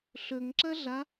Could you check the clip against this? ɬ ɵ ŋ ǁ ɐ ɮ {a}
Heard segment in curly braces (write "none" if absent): a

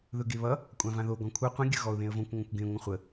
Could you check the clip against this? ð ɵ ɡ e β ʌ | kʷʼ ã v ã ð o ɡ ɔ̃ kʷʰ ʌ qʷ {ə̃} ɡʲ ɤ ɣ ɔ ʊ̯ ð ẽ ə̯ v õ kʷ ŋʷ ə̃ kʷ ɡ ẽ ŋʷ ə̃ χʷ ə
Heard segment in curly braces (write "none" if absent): ə̃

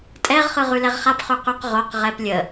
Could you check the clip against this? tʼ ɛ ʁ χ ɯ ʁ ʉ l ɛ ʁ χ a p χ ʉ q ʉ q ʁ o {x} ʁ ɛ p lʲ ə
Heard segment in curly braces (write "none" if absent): q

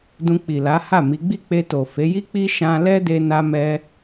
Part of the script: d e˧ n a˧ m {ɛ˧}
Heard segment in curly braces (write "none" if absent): ɛ˧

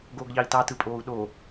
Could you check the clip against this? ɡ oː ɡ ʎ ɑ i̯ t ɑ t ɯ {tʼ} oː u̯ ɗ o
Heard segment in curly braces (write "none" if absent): pʼ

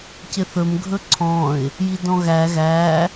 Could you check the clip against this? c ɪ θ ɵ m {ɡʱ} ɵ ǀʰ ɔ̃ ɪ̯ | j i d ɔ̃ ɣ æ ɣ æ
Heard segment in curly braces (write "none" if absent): ɡʱ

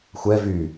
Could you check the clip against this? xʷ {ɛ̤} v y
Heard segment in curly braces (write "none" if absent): ɛ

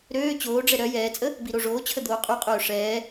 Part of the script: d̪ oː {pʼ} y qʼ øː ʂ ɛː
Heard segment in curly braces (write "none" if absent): qʼ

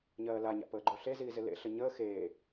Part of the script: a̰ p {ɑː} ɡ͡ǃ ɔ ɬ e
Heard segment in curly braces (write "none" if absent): əː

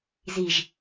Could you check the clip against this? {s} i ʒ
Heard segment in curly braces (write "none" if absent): z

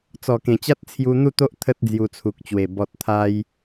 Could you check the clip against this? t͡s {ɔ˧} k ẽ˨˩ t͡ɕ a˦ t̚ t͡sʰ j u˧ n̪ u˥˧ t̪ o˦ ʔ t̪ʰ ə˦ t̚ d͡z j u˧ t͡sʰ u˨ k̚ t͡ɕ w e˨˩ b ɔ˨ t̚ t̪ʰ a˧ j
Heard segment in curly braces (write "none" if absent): ɔ˨˩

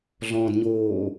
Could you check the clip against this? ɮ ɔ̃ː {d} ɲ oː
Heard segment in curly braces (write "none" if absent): d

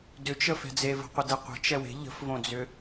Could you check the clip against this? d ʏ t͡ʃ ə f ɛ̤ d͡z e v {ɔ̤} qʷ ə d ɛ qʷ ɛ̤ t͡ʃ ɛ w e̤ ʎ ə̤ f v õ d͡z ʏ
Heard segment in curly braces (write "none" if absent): ə̤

